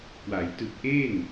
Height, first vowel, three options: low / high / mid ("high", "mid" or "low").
low